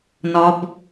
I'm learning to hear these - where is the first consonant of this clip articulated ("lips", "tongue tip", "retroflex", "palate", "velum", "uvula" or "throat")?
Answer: tongue tip